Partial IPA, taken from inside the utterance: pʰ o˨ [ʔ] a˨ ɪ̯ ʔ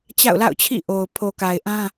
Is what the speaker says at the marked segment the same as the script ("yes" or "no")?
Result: no